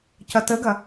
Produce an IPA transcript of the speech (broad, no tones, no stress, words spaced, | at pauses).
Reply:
cɐtəɡɐ